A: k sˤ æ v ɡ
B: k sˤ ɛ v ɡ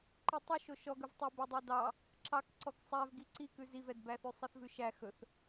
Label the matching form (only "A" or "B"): A